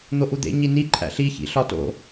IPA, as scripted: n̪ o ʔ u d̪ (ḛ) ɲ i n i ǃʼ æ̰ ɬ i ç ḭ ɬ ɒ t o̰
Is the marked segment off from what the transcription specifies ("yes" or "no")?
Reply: no